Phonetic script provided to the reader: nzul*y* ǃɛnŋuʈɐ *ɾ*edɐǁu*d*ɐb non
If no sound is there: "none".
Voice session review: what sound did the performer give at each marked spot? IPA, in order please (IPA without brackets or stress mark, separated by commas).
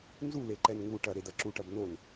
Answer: e, ɾ, ʈ